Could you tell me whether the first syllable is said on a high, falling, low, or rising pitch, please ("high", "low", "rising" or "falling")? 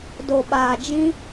low